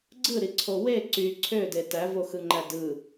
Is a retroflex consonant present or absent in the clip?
absent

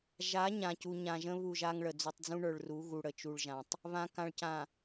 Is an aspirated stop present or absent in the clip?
absent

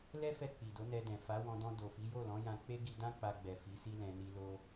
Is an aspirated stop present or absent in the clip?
absent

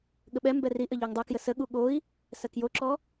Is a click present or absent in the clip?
present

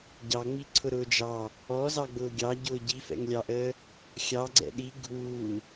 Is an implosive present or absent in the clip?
present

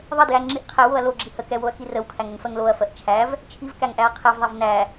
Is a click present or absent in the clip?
present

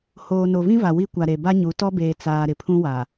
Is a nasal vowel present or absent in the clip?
present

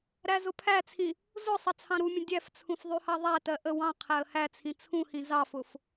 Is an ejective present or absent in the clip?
absent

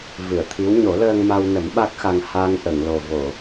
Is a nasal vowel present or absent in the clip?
absent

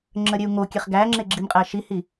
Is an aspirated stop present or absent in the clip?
absent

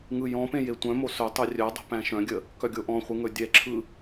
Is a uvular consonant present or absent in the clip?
present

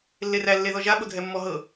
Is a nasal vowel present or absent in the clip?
absent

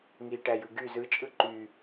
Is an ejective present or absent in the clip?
present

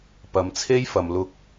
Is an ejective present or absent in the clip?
absent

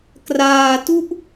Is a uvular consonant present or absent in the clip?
absent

